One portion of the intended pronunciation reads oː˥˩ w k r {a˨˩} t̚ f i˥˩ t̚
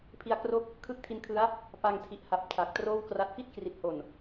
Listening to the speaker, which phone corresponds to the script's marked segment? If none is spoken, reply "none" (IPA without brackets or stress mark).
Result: a˦˥